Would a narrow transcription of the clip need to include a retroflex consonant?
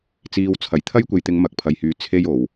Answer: no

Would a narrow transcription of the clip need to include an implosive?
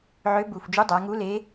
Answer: no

